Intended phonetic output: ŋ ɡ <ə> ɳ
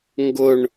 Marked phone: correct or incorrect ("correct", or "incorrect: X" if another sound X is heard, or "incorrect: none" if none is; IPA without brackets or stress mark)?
incorrect: ʊ